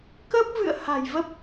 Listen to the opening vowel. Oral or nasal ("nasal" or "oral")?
oral